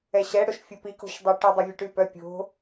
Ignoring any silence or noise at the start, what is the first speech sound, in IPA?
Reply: ɛ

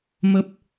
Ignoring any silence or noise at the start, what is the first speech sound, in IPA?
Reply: m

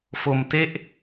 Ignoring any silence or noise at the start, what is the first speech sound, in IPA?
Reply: f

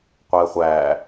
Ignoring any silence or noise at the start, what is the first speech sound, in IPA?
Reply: qʷ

